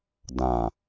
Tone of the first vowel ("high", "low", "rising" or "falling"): low